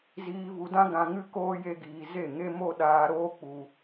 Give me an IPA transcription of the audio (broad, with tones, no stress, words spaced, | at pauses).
ziː˧vu˧dã˦ ɡã˧ŋɨ˦ koː˦je˦ɡiː˧ ze˦˨ŋe˦mo˦ ɗaː˧ɾoː˦k͡pu˧